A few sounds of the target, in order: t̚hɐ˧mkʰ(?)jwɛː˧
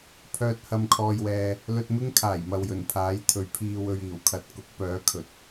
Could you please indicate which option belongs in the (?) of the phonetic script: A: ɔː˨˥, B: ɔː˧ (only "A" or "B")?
B